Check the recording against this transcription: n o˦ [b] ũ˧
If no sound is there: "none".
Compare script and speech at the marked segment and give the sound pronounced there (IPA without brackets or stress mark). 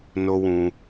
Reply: w